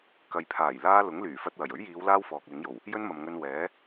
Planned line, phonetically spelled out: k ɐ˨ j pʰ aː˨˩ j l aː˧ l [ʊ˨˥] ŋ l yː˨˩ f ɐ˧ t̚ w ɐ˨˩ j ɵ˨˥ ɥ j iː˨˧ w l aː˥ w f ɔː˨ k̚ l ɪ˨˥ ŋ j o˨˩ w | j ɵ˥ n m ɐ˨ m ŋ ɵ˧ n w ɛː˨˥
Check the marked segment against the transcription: correct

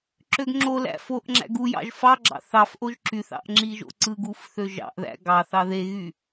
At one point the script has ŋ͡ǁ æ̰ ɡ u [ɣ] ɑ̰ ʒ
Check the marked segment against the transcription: incorrect: j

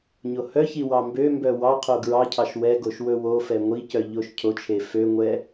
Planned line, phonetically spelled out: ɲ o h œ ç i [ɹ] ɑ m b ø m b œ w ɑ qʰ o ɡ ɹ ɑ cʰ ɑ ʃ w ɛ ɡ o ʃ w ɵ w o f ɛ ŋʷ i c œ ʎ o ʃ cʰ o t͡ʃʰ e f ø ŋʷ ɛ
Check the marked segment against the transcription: incorrect: w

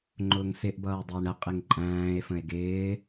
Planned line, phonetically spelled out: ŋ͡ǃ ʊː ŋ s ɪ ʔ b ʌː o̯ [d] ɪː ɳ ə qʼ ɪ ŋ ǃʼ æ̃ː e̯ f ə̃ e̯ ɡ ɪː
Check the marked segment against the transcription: incorrect: dˤ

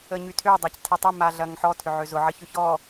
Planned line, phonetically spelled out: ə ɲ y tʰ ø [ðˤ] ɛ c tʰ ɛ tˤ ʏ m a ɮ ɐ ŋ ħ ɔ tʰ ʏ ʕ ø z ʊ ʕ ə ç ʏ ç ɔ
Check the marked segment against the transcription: incorrect: dˤ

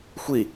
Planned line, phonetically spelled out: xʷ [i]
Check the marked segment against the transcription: correct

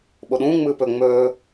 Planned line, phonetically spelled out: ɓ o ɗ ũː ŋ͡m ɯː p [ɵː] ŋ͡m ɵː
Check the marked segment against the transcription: incorrect: ɵ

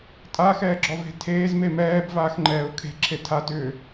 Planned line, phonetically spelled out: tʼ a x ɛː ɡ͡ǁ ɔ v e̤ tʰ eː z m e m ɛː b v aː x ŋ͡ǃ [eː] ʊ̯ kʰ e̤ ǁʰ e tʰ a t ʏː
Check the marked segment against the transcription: incorrect: ɛː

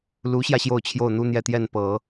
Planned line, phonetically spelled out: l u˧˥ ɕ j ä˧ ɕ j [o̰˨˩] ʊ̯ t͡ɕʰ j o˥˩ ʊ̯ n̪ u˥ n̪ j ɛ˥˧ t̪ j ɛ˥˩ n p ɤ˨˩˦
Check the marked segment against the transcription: incorrect: o˥˧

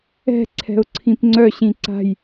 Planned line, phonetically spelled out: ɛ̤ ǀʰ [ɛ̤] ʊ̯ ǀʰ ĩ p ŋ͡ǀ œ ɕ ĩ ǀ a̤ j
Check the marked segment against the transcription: correct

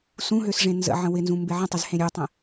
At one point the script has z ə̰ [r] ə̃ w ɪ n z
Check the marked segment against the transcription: incorrect: ʕ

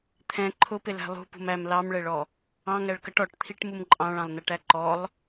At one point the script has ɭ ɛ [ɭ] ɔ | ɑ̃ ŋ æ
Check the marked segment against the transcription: correct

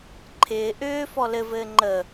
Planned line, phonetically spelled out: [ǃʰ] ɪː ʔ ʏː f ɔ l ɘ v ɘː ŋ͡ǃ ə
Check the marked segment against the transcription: correct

